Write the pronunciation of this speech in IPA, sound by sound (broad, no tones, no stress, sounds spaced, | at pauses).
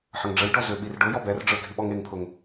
ħ ə ŋ ɖ͡ʐ ə j ɖ ɔ z ʏ ɓ i r ɖ ʊ j ɔ b ɛ r ɖ͡ʐ ə˞ ɡʱ i ɓ ɔ ŋ e ŋ pʰ ʊ ŋ